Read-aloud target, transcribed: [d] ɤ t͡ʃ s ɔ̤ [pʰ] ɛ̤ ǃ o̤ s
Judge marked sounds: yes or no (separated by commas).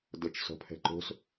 yes, yes